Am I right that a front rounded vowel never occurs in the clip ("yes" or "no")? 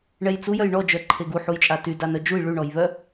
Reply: no